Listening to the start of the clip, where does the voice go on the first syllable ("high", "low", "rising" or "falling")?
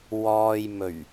low